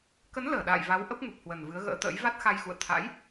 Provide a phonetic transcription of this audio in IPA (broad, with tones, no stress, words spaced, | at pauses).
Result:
kə˨˦nləː˧˩ ɗa̰ː˧˨jva˨˦w ʔə˦˥p̚ŋu˨˩p̚hwə˨˩n vɨ˨˦ə̯ɣə̰ː˧˥t̪ə̰ː˧˥j va˦˥t̚xa˧jxṵ˧˨ə̯ t̪ʰa̰˧˥j